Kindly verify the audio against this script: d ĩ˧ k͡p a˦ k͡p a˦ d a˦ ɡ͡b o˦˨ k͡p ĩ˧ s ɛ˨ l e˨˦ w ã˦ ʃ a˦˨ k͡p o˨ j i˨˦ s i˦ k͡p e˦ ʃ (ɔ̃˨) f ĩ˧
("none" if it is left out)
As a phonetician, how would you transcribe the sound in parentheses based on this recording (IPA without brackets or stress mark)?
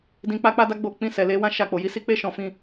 ɔ̃˧